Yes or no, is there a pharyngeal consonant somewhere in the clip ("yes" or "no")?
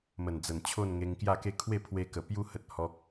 no